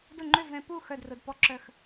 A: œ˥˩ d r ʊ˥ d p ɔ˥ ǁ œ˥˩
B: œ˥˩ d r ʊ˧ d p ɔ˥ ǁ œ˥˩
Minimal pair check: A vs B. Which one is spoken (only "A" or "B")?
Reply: B